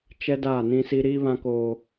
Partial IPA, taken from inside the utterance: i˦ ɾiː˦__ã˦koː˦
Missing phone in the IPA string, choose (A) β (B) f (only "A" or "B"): A